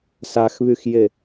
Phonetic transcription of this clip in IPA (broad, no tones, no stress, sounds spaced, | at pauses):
s a x β y x j e